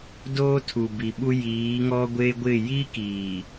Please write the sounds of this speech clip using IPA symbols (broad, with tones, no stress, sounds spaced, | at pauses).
d oː˦ tʰ u˨ b i˨ ɓ u˦ j iː˨˦ ŋ ɔ˦ ɡʷ e˦ ɡʷ ɪ˦˨ j i˦ k iː˨